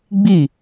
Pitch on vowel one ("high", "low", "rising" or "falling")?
falling